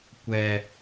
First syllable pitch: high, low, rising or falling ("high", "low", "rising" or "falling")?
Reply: low